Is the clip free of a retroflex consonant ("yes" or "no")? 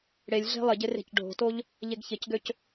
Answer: no